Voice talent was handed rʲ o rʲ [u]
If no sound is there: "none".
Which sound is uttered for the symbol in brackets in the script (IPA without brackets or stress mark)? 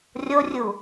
u